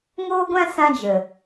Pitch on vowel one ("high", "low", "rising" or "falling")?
high